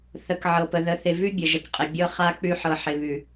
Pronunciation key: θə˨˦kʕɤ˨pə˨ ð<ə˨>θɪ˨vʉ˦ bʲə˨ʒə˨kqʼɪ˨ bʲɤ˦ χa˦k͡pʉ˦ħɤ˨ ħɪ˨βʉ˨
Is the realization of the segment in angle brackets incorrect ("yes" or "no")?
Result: no